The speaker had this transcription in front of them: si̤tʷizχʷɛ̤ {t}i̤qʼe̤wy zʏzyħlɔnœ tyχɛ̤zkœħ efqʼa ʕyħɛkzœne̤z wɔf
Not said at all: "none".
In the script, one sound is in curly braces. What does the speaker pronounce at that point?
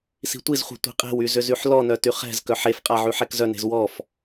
tʷ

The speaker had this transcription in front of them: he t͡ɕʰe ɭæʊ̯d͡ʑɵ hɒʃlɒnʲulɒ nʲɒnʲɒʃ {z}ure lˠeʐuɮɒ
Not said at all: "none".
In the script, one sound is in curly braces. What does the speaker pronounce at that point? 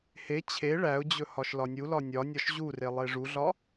ʑ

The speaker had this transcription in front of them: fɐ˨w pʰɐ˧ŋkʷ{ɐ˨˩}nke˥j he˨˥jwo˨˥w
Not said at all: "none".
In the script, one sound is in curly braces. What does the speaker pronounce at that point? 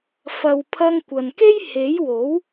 ɐ˨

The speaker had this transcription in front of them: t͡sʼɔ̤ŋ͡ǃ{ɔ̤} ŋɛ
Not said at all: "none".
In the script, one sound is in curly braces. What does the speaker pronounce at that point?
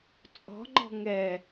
ɔ̤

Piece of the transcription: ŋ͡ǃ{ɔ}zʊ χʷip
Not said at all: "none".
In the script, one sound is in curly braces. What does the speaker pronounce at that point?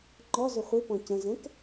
ɔ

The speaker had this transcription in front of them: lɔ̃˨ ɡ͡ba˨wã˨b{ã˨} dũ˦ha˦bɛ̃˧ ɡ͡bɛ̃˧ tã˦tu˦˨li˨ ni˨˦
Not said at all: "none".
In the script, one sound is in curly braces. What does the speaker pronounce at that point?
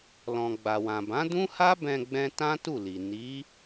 ã˨˦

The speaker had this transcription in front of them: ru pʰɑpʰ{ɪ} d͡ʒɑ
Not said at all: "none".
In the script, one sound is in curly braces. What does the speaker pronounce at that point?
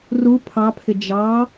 ɪ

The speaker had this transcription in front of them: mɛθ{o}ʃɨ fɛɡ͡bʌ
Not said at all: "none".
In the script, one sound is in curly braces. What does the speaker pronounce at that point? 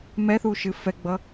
u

